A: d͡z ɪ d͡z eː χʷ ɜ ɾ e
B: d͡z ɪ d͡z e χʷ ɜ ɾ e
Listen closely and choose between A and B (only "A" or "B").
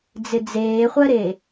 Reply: A